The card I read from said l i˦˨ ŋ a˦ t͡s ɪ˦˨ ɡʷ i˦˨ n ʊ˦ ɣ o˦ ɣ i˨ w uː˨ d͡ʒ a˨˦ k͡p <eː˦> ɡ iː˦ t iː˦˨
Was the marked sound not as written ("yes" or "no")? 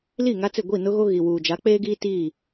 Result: no